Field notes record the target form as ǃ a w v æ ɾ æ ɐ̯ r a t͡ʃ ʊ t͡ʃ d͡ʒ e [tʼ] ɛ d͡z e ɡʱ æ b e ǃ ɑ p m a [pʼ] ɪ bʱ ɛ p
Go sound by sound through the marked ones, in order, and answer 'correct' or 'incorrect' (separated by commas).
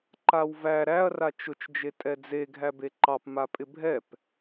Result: correct, correct